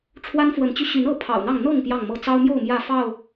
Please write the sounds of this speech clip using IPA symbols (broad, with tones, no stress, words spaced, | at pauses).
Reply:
ʈ͡ʂʰwa˦nfwə˨˦nt͡ɕy˧ ɕy˨˦nɤ˨˦ pʰɑ̰˨˩ʊ̯n̪ɑ˥˨ŋ n̪ɤ˥˨ŋ pjɑ˥˨ŋmɤ˥˨ t͡sɑ˦ʊ̯mjo˥˨ʊ̯ mjä˥˨fɑ˥˨ʊ̯